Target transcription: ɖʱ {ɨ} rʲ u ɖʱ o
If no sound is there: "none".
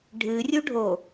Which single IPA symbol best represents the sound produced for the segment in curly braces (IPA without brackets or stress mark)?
ɨ